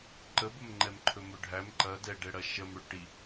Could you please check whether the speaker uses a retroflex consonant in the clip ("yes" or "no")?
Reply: yes